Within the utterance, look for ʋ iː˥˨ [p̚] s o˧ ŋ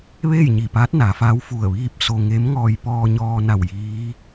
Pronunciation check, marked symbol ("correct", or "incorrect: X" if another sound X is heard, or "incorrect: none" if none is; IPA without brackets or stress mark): correct